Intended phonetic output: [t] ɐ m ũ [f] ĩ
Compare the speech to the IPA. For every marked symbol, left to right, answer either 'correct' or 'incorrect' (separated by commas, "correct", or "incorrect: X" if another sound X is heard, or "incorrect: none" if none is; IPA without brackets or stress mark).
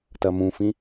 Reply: correct, correct